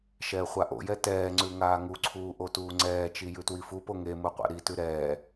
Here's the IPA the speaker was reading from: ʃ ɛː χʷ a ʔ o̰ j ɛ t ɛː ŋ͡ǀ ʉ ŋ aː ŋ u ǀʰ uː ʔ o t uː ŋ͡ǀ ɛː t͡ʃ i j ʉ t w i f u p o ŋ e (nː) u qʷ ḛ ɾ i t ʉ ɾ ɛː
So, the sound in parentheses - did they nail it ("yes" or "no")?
no